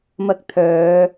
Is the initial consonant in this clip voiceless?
no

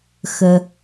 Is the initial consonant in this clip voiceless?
yes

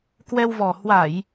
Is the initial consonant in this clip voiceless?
yes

